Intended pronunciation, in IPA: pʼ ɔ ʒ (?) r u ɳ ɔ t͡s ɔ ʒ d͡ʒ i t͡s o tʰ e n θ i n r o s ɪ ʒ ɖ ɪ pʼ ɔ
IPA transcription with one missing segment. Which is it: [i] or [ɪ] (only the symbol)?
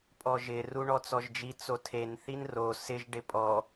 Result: ɪ